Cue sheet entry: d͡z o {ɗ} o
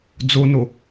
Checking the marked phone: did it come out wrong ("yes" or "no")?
yes